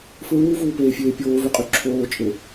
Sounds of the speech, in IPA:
fɹuːvuːpeːfʲeː pʲoːvyqʼy ǁʰoːt͡ʃʼe

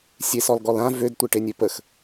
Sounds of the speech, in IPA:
sʲesɔlɡɔlã vød tʷeʈenʲøpəx

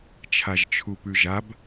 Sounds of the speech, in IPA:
t͡ʃʰaʒt͡ʃʰupʉʒab

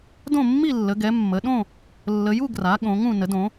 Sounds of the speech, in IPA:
dõ˥˧mːi˥˧lːə˨˦ɡɛ˨˦ mːə˨˦ ɗõ˥˧ | lːə˨˦ju˥˧ ɡra˨˦ ɠõ˨˦ŋũ˥˧ nə˨˦dõ˨˦

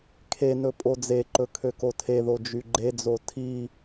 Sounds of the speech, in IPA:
kʰenɵ pʼod͡zeǃɵ kʰøkotʰeðo d͡ʒyɡ͡ǃed͡zo tʰi

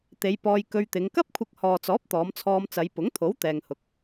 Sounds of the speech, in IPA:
t̪e˨˧jpɔː˧jkɵ˧ɥt̪ɪ˨˧ŋ kɐ˥p̚kʷʰɪ˧k̚hɔː˨t͡sɔː˨˥p̚ t̪ɔː˨˧mt͡sʰɔː˧m t͡sɐ˨˧jpʊ˨˥ŋt̪ʰo˨˥w t̪ɛː˨ŋhʊ˨k̚

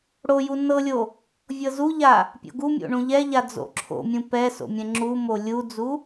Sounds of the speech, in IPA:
ɽoju nɤlʲo | vʲɤzuʎa | pʲo̰ɡumʲo̰ ɳũʎɛʎa d͡zo̰ǁʰo̰mʲũ pɛso̰ mʲɛ̃ŋ͡ǁumo lʲud͡zu

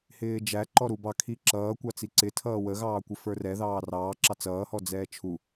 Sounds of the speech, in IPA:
hɪːd͡ʒæ ǃɔɾubɑ kʰiǁʌː kʷɑt͡siǀɪ tʰʌːwə ɣɑːkʷɪfə˞rɛ ðɑːrɑː ǁɑt͡sʌː hɔd͡zɛːt͡ʃʰu

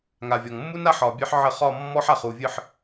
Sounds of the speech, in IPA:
ŋa˨vʲɔ˨ŋ mːu˦n a˦ħɒ˨bʲə˞˦ħʕə˦˨ χɒ˦˨ mːɔ˦ħa˨χu˨vʲɨ˦˨ħ

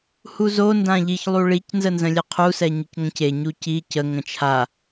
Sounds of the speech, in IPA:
huzo ndãʎiç lˠuɭic nzənzə̃lʲɛqʰu sɛɲəcŋə̃ce ɲuci cə ŋə̃t͡ʃʰa

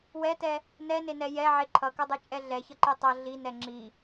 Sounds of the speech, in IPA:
wɛtɛ | nɛnenɛ jɛʕe ǃʰʌkʌdˤɛt͡ʃʼɛ ɮɛçʌǃe tˤʌ ɮinɛ ŋ͡ǁi

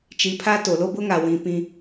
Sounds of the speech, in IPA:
t͡ʃi˨˦pʰa˦to˨ lo˦bʊ˦ŋa˨ wĩ˨ pĩ˦

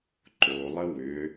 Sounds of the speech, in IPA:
ǃolˠə wʏ

